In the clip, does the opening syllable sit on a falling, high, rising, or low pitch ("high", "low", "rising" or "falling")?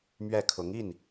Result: falling